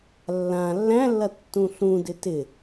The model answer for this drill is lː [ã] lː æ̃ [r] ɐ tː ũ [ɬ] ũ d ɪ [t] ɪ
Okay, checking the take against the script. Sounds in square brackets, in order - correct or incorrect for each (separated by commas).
correct, incorrect, correct, correct